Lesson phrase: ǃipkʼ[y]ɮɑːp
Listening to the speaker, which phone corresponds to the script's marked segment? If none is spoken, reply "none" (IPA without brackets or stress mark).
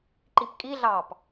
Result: i